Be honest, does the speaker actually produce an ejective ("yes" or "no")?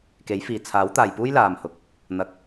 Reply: no